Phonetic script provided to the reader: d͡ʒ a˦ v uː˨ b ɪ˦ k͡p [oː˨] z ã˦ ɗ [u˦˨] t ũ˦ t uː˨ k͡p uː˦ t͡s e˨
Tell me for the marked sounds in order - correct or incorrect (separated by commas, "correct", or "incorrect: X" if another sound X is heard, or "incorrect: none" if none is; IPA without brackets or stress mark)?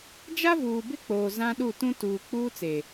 correct, correct